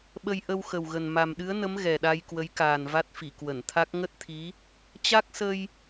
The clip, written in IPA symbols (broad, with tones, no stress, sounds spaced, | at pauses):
ɓ ə˧ j ʔ ə˧ w x ə˨˩ w ɣ ə˨˩ n m a˨˩ m ɗ ɨ˨˦ ə̯ n ə˨˦ m ɣ ɛ˨˩ ɗ a˧ j k w ə˨˦ j k aː˨˩ n v a˦˥ t̚ f i˧˩ k w ə˧˩ n t̪ʰ a˦˥ k̚ ŋ ə˦˥ t̚ t̪ʰ i˨˦ | t͡ɕ a˦˥ k̚ s ə˧ j